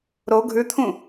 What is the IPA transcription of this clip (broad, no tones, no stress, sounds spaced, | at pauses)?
ɾ o ɡʱ ʉ t̪ʰ ũ